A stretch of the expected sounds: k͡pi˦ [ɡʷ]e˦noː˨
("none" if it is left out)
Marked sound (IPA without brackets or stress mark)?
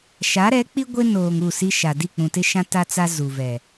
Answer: ɡʷ